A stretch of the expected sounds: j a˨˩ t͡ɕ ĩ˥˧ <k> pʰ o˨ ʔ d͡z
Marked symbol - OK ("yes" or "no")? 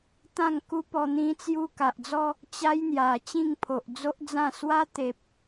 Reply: no